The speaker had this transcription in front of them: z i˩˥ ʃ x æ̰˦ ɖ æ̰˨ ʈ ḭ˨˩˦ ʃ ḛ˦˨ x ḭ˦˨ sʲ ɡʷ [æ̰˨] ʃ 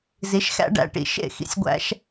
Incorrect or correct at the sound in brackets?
incorrect: æ̰˦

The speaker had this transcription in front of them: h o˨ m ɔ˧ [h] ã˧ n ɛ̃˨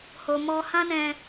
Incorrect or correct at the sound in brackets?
correct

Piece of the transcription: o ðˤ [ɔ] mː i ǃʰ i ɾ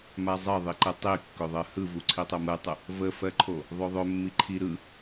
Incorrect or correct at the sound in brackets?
incorrect: ɵ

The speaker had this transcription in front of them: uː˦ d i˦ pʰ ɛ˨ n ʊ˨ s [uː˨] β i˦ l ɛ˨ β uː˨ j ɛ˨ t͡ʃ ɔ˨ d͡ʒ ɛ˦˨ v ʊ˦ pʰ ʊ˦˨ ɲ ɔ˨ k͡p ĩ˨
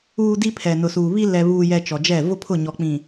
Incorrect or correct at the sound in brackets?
correct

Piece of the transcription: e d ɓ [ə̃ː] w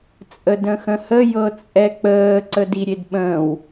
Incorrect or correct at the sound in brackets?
correct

